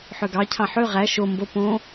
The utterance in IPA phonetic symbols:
ħ ø ɡ ɑ cʰ ɑ̃ ħ ø ʁ æ ʃ o m b o p õ

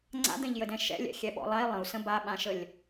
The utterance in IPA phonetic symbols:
ŋ͡ǀ a̰ d̪ ɛ̃ ʎ j ə d ɛ̃ ʃ ɛ̰ lʲ ɛ̰ xʲ ɛ ɓ ɔ̰ lˠ a i̯ lˠ ə̃ u̯ s ə̃ b a ɓ ã ʃ ə lʲ

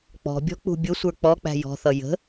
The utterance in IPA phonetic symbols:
k͡p ɔ̤ bʲ ɔ̤ k͡p ṳ bʲ ʊ sʷ ə˞ k͡p ɔ k͡p æ̤ j ɔ̤ θ ʌ j ə̤

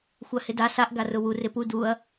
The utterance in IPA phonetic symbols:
xʷ a h ɪ d a s a ʔ ɡ a r ʊ w u r ɪ p u d u ɐ̯

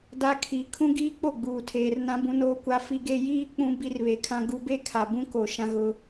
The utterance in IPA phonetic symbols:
d a˦ kʰ i˨ kʰ ũ˦ ɡ iː˦ k͡p o˦˨ ɡ͡b uː˨ tʰ eː˨ r n ã˦ b ũ˦ n oː˦ kʷ a˦ f i˦ ɡ e˦ j iː˦ k͡p ũ˦ b i˦ r β e˨ kʰ ã˦ ɡ u˦ b e˦ kʰ a˨ b ũ˦ k o˨ ʃ ã˦ ɣ ʊ˦

